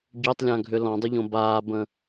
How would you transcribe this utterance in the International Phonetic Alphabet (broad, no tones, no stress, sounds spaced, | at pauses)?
ɟ ø tˤ lʲ ã ɡʱ ʏ l ɔ̃ dˤ ʏ ʎ õ b aː b ə̃